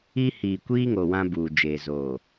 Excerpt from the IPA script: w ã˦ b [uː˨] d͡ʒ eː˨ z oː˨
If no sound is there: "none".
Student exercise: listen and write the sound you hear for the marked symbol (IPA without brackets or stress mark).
uː˨